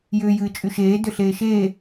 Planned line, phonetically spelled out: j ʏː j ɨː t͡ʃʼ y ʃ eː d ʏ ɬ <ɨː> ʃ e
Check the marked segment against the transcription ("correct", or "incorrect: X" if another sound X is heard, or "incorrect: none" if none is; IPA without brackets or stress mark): incorrect: eː